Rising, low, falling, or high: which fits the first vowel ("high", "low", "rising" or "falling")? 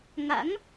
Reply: rising